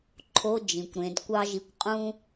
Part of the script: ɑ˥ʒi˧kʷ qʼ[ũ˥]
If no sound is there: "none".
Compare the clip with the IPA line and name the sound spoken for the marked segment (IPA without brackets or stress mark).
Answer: ũ˥